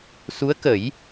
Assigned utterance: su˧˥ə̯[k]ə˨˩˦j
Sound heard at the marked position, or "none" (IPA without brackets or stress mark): k